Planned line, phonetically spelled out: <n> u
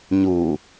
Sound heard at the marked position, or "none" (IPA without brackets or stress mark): ɲ